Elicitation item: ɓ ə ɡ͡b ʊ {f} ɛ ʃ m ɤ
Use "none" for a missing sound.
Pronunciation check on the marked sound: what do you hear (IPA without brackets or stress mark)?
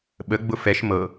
f